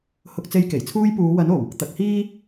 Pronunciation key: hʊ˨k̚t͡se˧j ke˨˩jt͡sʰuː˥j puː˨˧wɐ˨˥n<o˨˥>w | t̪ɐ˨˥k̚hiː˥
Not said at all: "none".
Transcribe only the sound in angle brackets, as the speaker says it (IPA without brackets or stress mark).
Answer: o˨˩